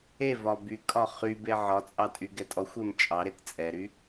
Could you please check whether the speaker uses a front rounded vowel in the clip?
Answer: yes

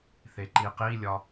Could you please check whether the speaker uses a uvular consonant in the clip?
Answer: yes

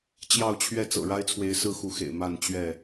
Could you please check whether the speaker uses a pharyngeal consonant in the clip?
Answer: no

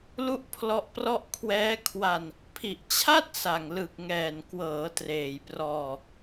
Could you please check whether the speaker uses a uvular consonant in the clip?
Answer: no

